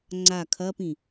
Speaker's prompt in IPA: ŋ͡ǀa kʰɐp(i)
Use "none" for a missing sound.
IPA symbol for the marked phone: ĩ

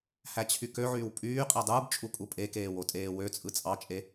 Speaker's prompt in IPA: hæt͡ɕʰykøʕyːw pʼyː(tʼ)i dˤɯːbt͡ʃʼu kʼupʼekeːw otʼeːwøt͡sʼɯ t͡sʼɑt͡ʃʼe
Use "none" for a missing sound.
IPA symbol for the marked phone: qʼ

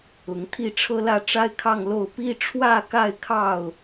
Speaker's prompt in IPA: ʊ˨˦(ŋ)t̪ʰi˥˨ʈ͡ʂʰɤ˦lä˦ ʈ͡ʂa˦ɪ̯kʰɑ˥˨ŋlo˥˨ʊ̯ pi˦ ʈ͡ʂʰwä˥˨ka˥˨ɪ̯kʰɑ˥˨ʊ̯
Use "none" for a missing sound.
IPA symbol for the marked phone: ŋ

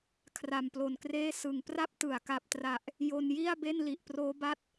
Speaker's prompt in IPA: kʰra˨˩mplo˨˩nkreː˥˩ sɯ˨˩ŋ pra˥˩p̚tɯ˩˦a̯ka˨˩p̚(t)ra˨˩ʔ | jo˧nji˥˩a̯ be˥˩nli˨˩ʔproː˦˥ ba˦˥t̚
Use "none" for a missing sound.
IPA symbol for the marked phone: t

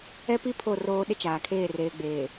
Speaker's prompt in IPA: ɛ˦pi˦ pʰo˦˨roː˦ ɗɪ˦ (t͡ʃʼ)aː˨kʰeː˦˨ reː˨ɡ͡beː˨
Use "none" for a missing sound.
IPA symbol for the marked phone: t͡ʃ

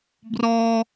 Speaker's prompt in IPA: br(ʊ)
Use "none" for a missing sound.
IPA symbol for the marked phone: ɔ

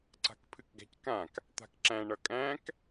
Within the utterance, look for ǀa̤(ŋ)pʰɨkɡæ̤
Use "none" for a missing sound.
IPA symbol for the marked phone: k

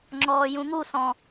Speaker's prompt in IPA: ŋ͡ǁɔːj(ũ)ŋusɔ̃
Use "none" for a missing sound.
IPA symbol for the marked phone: ũ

